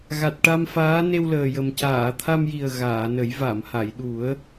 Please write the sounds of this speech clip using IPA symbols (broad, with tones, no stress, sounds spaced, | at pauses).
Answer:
ɣ a˨˩ t̚ ʈ a˧ m f aː˧˥ n e˧ w l əː˨˩ j ə˨˩ m c aː˨˩˨ t̪ʰ a˧ m j i˨˩ ə̯ ɣ aː˨˩˨ n ə˨˩˦ j v a˨˩˨ m h a˨˩˨ j ɗ u˨˩˦ ə̯